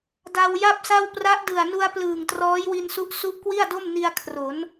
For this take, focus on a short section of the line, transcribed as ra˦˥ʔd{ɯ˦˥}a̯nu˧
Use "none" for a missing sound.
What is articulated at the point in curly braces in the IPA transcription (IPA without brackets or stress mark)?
ɯ˨˩